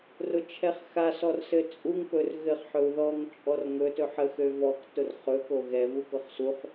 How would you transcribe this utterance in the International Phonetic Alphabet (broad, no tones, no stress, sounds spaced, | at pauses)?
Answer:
r ʊ t͡ʃʰ ɛ χ x a s ɔ r s ɘ t͡sʼ u ŋ p ɵ r ɣ ɘ χ ħ ɵ u̯ ð ɔ ŋ t͡ʃʼ ɔ r ŋ ɵ t ɵ ħ ə x ø v ɔ k t ʊ r χ ɵ k o ɣ ɛ v u k ʊ χ s u χ